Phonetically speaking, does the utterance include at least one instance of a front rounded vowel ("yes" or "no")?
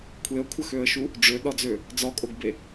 yes